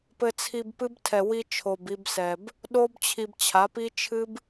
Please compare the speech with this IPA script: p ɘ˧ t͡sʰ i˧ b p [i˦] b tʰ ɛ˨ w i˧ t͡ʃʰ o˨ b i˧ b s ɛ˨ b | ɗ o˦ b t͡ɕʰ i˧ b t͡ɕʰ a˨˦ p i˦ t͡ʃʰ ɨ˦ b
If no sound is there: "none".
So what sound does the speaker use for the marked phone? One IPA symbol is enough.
ɨ˦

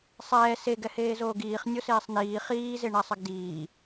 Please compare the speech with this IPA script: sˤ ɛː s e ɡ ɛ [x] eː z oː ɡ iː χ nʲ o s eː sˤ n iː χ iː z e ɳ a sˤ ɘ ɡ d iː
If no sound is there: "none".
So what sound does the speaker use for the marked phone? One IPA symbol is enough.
h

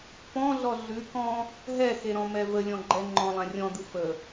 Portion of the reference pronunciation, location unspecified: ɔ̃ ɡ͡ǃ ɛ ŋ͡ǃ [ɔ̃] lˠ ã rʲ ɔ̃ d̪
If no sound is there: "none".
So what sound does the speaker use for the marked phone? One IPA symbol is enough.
ɔ̃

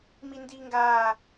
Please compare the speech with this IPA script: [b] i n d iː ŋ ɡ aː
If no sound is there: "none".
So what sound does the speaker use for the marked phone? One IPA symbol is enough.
m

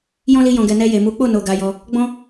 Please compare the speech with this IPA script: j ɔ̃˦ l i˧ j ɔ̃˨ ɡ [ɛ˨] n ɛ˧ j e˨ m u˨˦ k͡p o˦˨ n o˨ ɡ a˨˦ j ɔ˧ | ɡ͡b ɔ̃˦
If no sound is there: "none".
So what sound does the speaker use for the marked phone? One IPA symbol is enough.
ɛ˨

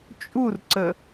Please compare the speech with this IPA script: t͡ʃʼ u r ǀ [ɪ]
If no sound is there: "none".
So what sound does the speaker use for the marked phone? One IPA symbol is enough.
ə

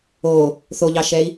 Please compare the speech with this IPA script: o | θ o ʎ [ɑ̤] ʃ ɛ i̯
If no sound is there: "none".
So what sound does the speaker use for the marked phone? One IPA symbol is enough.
ɑ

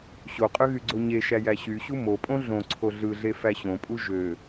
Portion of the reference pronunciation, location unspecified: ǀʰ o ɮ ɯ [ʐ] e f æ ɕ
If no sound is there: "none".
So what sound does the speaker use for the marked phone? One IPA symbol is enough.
ɮ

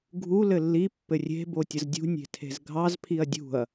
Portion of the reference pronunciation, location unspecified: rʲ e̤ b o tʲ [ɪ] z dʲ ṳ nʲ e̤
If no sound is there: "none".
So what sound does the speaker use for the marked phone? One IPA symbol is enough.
ə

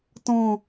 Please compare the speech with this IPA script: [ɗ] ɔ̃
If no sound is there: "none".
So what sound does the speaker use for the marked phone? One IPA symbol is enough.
t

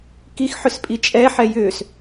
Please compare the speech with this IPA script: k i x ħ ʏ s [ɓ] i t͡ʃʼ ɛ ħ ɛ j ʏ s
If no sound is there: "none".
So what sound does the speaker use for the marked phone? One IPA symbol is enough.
pʼ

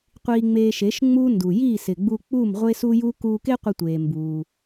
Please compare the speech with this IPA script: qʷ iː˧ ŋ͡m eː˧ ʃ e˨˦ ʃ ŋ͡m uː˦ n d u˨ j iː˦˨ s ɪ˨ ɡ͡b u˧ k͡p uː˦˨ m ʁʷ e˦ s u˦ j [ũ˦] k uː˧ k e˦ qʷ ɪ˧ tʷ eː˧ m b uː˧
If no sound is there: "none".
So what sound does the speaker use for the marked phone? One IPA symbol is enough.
u˦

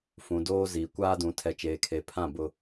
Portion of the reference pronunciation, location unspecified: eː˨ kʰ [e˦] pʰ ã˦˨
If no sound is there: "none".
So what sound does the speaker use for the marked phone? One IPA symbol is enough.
e˨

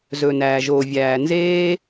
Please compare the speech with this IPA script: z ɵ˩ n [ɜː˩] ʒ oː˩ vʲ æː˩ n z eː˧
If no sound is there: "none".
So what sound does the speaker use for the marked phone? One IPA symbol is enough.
æː˩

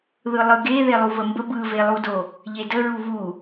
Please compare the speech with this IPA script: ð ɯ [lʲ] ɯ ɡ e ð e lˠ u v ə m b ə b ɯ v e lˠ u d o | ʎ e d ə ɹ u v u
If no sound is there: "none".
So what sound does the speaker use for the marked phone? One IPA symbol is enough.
lˠ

